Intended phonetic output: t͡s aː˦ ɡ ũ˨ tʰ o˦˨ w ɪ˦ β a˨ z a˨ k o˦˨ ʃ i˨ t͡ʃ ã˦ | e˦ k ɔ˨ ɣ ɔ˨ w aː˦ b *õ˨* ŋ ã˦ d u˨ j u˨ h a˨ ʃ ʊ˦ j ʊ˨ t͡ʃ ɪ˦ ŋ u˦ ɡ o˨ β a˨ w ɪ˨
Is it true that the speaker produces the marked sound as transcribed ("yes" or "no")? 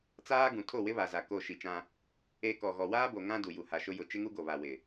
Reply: no